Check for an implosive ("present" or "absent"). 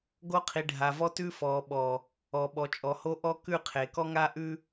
present